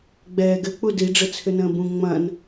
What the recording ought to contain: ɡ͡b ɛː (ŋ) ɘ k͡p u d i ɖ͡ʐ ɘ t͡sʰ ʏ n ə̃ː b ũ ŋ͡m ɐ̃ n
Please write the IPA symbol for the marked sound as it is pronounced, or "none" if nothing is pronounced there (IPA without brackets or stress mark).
ɡ